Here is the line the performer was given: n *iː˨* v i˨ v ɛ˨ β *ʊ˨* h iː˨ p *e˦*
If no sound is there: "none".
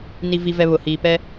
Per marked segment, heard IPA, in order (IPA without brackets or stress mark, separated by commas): i˨, ʊ˨, ɛ˦